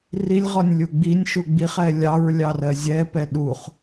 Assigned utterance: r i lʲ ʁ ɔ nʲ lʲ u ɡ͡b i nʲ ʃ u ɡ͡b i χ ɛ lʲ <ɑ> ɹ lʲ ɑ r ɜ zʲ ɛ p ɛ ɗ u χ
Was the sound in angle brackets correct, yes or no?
yes